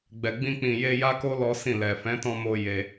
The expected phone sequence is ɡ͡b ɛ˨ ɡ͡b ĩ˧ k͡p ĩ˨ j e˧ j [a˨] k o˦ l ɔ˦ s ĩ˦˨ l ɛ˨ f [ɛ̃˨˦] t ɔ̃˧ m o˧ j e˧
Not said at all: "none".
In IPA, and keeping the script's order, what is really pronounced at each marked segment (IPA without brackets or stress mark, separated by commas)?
a˦, ɛ̃˨˦